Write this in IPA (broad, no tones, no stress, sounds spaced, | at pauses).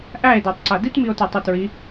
ʔ æ e̯ d æ tˤ ǀ a d i t m i o̯ t a tˤ ɯ t ɹ i